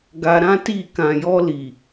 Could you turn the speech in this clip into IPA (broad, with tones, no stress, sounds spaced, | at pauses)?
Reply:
ɡ a˧ ɾ ã˦ t i˦˨ k ã˨ j ɔ˧ l i˨